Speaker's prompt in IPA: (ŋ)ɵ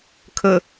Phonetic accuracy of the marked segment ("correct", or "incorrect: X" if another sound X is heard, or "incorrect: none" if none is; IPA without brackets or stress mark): incorrect: kʰ